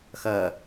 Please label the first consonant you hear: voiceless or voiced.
voiceless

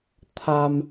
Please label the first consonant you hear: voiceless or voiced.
voiceless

